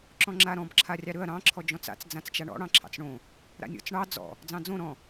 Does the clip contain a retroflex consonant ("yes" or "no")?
yes